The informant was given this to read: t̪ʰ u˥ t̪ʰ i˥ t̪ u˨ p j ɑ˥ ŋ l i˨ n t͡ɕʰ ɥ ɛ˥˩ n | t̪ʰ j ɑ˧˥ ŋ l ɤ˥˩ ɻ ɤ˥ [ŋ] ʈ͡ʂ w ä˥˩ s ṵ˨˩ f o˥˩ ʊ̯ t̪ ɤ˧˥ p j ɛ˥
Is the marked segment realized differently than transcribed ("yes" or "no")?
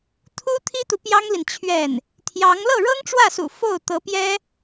no